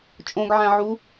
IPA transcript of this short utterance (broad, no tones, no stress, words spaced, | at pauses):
t͡ʃʼõɡʕæ̃ʕu